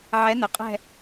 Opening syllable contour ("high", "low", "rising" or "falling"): rising